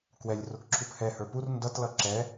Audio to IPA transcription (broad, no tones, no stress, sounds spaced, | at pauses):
k w ɛ lʲ r ʊ k ǁʰ u p h ɛ h ə˞ p u r n d ʌ t l ʌ ǁ ɛ